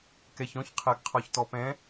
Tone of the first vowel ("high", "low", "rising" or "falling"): low